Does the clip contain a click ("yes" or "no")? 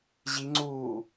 yes